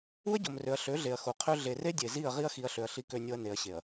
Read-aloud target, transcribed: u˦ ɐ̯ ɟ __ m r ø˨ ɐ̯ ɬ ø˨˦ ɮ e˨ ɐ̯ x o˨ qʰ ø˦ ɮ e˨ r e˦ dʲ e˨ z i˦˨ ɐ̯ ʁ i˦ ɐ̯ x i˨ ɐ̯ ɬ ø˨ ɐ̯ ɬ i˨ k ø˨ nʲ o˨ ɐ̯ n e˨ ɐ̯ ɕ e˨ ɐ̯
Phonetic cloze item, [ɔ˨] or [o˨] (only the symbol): o˨